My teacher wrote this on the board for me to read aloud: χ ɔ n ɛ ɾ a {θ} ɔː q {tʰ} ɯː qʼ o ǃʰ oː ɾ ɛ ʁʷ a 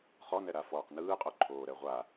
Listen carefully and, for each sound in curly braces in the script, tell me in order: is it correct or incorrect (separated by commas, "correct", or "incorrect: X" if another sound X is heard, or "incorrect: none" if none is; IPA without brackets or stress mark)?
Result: incorrect: f, incorrect: n